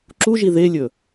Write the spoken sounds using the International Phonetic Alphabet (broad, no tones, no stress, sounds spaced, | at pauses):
ǁ u ʒ i ð e lʲ ɵ